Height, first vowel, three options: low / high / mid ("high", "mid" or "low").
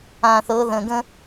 low